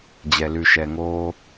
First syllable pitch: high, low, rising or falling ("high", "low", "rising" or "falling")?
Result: low